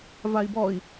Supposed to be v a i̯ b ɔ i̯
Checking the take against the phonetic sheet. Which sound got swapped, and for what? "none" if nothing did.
none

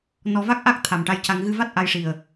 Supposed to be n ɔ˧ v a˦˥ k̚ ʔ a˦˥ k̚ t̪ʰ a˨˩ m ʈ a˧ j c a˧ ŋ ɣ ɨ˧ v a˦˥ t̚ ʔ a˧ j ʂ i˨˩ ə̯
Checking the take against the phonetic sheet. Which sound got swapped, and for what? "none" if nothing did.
none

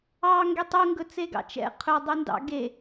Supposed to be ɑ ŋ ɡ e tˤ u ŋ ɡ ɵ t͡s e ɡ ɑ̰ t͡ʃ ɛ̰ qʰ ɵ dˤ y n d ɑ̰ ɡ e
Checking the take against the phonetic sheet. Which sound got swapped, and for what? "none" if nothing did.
none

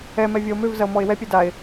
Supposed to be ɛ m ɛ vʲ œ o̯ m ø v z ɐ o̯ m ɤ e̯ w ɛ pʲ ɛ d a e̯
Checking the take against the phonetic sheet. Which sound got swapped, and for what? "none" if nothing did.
ɤ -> ɔ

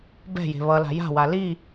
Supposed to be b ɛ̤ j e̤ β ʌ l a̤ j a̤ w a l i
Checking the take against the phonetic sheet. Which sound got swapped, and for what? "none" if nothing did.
none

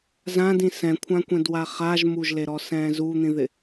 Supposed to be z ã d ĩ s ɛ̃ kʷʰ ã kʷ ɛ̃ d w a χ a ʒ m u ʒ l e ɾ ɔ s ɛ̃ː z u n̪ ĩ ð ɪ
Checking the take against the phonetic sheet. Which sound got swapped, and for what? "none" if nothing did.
none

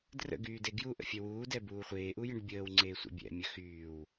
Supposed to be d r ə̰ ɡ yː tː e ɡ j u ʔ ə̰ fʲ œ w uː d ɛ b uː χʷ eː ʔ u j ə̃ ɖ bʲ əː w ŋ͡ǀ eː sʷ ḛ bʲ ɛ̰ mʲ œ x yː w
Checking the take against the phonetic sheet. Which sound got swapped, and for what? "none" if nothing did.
tː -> d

